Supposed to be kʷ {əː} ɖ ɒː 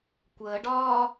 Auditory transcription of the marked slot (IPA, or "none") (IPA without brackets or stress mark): əː